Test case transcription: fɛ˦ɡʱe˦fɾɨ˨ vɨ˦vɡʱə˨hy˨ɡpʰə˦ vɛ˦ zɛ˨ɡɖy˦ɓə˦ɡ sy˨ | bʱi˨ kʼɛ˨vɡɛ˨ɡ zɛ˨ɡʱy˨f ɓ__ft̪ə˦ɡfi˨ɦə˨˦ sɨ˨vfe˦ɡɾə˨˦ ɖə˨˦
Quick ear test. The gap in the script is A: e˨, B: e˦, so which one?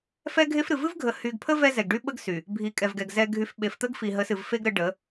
A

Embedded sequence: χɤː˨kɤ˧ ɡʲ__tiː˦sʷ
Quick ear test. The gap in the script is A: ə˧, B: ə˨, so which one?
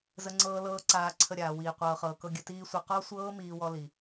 A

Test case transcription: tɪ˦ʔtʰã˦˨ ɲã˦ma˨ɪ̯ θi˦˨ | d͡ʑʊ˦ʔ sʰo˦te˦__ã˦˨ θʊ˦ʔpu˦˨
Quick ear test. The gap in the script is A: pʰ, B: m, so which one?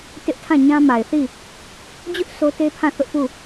A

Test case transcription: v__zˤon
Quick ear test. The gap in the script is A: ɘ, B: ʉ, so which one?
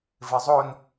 A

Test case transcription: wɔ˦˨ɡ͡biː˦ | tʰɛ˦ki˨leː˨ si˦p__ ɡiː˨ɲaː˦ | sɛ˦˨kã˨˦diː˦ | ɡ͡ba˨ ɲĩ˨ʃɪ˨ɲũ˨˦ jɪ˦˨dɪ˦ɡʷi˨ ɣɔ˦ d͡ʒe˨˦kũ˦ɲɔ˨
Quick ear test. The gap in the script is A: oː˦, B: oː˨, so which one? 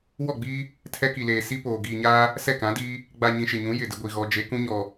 B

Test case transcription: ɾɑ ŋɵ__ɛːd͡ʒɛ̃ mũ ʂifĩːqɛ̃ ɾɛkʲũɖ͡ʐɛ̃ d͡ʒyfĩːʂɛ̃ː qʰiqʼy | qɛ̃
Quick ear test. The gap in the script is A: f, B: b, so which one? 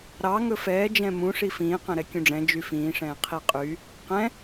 A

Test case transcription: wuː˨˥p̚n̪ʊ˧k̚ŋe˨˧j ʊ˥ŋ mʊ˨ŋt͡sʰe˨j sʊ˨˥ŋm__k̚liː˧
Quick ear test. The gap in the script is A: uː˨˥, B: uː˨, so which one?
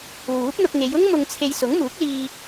A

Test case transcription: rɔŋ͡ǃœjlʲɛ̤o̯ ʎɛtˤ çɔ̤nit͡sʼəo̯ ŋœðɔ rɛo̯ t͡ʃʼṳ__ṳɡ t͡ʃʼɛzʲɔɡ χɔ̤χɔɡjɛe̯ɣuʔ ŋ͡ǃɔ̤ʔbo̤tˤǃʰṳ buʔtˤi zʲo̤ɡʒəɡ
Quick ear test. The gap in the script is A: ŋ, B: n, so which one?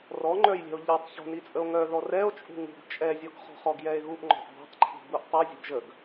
A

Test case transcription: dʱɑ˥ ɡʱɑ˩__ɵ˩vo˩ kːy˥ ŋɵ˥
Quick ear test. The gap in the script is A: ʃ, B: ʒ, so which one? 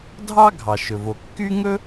A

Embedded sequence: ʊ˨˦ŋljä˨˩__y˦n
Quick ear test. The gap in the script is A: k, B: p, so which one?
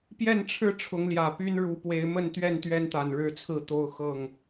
B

